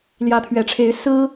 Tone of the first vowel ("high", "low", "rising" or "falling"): rising